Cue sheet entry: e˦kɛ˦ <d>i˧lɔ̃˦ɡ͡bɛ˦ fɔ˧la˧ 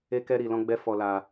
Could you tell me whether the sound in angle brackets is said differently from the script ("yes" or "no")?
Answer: yes